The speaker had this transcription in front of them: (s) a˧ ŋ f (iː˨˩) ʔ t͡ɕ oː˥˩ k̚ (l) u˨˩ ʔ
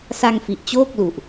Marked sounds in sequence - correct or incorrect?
correct, incorrect: i˨˩, correct

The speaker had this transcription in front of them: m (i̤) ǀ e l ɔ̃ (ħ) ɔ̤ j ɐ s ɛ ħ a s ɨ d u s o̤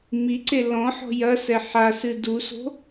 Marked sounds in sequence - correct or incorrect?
incorrect: i, correct

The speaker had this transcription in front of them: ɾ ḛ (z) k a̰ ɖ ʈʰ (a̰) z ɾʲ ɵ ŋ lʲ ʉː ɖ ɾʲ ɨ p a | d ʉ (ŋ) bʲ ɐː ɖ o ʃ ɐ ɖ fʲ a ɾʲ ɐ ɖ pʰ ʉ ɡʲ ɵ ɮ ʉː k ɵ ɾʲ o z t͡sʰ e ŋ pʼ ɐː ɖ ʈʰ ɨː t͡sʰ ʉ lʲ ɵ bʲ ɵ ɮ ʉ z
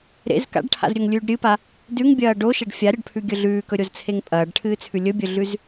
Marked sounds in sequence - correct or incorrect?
correct, correct, correct

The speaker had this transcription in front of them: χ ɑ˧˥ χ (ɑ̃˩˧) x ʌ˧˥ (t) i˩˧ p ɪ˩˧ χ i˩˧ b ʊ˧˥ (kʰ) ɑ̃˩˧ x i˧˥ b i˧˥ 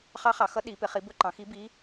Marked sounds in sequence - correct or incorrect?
incorrect: ɑ˩˧, incorrect: ɗ, incorrect: ǃ

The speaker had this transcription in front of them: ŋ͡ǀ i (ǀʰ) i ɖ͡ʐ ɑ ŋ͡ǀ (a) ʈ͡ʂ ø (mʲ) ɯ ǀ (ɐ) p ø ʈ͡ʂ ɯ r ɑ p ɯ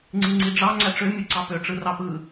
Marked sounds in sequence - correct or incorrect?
incorrect: ŋ͡ǀ, incorrect: æ, correct, incorrect: ɑ

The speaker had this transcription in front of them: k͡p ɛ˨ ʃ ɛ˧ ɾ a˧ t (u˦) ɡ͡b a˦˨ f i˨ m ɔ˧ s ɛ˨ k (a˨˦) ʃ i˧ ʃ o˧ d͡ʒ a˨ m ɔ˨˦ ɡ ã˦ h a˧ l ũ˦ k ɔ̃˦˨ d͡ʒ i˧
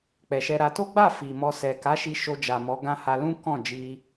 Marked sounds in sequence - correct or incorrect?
incorrect: o˦, correct

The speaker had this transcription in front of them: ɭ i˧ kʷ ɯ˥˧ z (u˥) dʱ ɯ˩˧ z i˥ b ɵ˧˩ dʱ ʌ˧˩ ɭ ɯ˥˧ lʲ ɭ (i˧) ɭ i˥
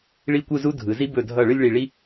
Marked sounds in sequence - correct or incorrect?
correct, incorrect: i˧˩

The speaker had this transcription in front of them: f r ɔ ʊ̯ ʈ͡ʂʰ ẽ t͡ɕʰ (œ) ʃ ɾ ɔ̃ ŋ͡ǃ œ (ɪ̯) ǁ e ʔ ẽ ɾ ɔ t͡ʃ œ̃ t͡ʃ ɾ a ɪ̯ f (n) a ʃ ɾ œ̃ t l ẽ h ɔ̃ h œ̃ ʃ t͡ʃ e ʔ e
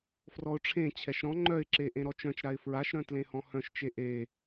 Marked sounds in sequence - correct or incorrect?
incorrect: ɛ, correct, incorrect: ɹ

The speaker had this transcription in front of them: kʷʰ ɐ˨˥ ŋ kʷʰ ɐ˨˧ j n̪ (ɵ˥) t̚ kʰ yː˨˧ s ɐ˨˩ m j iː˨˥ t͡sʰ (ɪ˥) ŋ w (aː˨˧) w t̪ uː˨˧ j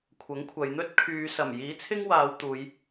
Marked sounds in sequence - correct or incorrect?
correct, correct, correct

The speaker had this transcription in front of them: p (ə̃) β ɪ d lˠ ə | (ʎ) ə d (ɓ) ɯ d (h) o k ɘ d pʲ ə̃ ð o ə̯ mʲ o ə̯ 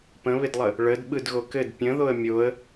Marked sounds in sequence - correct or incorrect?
correct, incorrect: ɭ, correct, incorrect: ɣ

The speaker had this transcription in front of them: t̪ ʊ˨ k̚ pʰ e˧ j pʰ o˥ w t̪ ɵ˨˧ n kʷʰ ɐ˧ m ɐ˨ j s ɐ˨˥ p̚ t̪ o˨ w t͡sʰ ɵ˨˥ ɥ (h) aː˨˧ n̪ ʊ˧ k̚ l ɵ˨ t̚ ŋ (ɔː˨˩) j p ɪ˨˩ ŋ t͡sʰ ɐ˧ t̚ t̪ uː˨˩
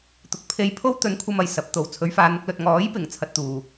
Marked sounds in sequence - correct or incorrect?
incorrect: f, incorrect: ɔː˨˥

